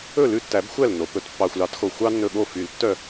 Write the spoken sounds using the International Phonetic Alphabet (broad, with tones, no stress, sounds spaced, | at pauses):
ɵ˥˩ l ʉ˥˩ tː æ˨˩˦ b xʷ æ˥˩ l nː o˩ p ɵ˨˩˦ t pː ɑ˩ xʷ l ɑ˨˩˦ t x o˩ xʷ ɑ˦ nː ɵ˧˩ ɠ o˥˩ f y˨˩˦ l tː œ˥˩